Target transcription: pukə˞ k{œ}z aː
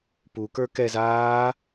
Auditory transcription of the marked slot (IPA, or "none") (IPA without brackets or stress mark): ɛ